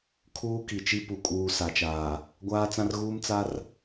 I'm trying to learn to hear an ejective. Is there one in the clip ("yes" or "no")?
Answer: yes